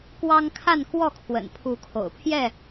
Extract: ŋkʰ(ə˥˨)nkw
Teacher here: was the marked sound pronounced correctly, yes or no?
no